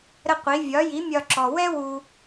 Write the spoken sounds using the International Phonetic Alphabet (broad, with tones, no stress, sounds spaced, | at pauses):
ɾ ə˥ qʷ i˩˥ vʲ ɒ˩˥ j i˩˥ mʲ ɒ˧ ǁ ɔ˩ w ɛ˥ w u˧